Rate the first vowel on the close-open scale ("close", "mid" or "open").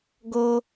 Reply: mid